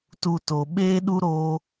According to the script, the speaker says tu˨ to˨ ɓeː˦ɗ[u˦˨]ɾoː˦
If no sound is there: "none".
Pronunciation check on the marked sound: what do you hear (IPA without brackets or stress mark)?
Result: u˦